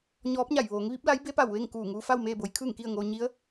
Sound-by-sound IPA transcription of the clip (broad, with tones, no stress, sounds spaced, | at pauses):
ɲ ɔː˧˥ p̚ ɲ a˧˩ j ʋ oː˩˧ ŋ ʋ i˧˥ p̚ l a˧˥ j b e˧˥ p a˧˩ w ʋ e˥˨ ŋ k uː˧˩ ŋ uː˧ f a˥˨ w m eː˥˨ b o˩˧ j kʰ ɯː˥˨ ŋ k i˥˨ ə̯ ŋ oː˧ ɲ i˧˥ ə̯